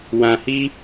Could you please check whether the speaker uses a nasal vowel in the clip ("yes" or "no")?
yes